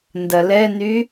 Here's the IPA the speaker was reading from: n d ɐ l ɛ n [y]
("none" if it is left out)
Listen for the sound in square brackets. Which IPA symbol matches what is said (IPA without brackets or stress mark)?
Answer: y